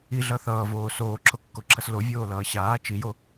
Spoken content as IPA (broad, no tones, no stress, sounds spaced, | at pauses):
i ɮ ʌ θ ʌː v oː s oː ǁʰ o kː o ǁʰ ʌ s l o vʲ oː l ʌː ɕ aː t͡ʃ i j o